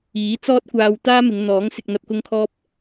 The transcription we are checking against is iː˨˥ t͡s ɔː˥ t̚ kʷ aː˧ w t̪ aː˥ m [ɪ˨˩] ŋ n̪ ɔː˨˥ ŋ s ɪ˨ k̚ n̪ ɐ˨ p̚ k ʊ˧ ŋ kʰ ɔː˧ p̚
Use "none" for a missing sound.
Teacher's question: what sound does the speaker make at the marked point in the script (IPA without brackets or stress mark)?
ɪ˨˧